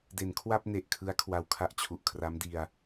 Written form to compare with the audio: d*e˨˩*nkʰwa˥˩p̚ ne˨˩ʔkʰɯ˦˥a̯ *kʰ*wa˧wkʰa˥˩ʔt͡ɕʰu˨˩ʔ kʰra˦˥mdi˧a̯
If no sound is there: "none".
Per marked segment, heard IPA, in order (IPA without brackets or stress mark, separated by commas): e˩˦, kʰ